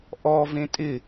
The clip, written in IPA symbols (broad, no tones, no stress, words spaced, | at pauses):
ʔɔ vẽtʼɪ